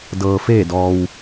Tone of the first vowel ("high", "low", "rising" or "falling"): low